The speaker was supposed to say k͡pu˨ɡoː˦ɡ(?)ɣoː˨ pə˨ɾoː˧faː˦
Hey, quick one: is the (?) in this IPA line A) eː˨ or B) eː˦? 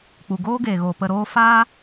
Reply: A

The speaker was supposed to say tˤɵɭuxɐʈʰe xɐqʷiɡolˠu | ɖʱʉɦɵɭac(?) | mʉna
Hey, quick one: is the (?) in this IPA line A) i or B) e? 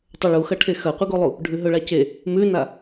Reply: B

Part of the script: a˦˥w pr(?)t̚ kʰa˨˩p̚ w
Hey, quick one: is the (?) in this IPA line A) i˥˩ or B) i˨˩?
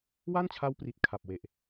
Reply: B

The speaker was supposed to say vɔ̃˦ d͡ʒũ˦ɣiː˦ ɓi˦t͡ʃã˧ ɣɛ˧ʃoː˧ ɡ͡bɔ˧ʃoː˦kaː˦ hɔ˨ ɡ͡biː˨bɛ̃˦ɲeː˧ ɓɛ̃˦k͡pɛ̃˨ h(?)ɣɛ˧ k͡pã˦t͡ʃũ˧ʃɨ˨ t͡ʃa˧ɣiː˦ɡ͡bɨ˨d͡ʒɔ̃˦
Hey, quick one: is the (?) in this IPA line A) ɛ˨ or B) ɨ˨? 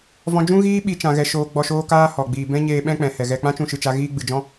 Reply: A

